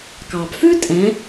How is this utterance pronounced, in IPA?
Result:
k ɑ˩ b f ʉ˥ tʼ ɛ̃˩˧

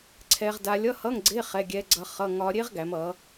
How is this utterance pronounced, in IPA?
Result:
ǀʰ ɛ˦˥ ʁ d a˦˥ lʲ ʌ˧˥˧ h ʌ˧˥˧ ŋ ɡ͡ǀ e˧˥˧ χ ɛ˧˥˧ ɡʲ ɛ˦˥ ɡ͡ǀ ʌ˦˥ χ ʌ˧˥˧ ŋ ɒ˦˥ ɾʲ e˦˥ ʁ ɡ æ˩˧ m ʌ˩˧

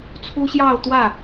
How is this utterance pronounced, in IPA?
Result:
t͡sʰ u˥ ɕ j ɑ˥˧ ʊ̯ t̪ w ä˥˩

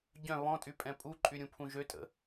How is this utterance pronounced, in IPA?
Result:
ɟ œ̃ β ɔ̃ tʼ y pʼ ɛ̃ pʼ u ǃʼ y ɾʲ ũ pʰ ũ ʒ ø tʼ ə̰

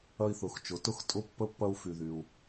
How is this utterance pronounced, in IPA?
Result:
ɐ˧ i̯ θ ʊ˩˧ x t͡ʃ ʊ˩˧ t ʊ˧ x tʼ ʊ˧˥ pː ə˧˥ pː ɐ˧ u̯ f y˩ ð y˩ u̯

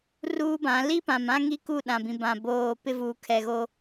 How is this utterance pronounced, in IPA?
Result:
r uː˦ b ã˨˦ l i˦ p ã˨ m ã˦ ŋ i˦ k u˦˨ ɗ ã˨ b ĩ˨ b ã˨ b oː˨ p ɪ˦ v uː˨ kʰ ɛ˨ ɣ o˦

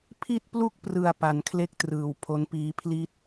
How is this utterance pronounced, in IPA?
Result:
pʰ i˥˩ t̚ p l u˥˩ k̚ p r ɯ˨˩ a̯ p a˨˩ n kʰ l e˥˩ k̚ t r ɯː˨˩ w pʰ o˦˥ n p iː˦˥ pʰ l i˥˩ t̚

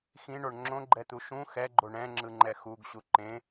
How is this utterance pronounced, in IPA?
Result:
x ĩ ɳ o ɳ ŋ͡ǁ õ ɡ͡ǃ ɛ t̪ u ʃ ũ x ɛ ɡ͡ǃ o ɳ ɛ̃ ŋ͡ǁ ɯ ŋ͡ǃ ɛ x u ɡ ɕ u ǃ ẽ

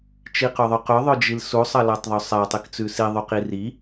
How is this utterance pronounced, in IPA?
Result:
t͡ʃ i q ɵ ðˤ ɵ q ɵ ðˤ ɵ d͡ʒ i l s u sˤ ɐ l a tˤ ðˤ ɵ sˤ a tˤ i k t͡s ʉ s i ðˤ u q i r i

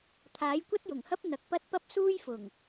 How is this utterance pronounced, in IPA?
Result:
t̪ʰ aː˨˥ j kʷ ɐ˥ t̚ j ʊ˨˩ ŋ h ɐ˥ p̚ n̪ ɐ˨ k̚ p ɐ˥ t̚ p ɐ˥ p̚ s uː˥ j f ʊ˨˩ ŋ

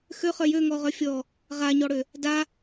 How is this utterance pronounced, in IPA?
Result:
x ø χ œ j ø ŋ ɔ ʁ œ fʲ ɔ | ʁ a ɲ ɔ ɽ ø | d a

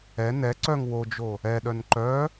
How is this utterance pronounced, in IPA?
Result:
ɛ n ɛ ǀ œ ŋ w o d͡ʒ o | ɛ ɗ œ n ǃ œ

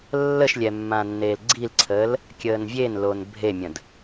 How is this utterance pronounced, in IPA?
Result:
lː ə ʃ lʲ ɛ mː ãː nː eː l ɡ͡ǀ i l ǀʰ əː l | kʲ əː n vʲ e n l o n bʱ e mʲ ə̃ d

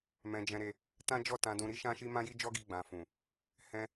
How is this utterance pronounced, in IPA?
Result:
m ɛ̃˧ d͡ʒ ɛ̃˧ ɾ e˧ | t ã˦ d͡ʒ ɔ˦˨ t ã˧ d ũ˧ ɾ i˦ ʃ ã˦ ʃ i˦ m ã˦ j i˦ d͡ʒ ɔ˦ ɡ i˧ ɡ͡b ã˧ f ũ˨ | h ɛ̃˧

